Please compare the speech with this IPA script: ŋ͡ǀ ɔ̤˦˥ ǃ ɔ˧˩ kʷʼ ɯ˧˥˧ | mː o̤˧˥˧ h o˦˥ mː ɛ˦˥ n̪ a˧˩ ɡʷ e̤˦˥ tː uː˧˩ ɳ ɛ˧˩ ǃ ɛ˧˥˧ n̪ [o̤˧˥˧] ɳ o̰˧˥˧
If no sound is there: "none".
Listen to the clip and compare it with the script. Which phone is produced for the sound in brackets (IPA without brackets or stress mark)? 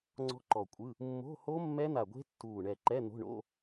o̤˧˥˧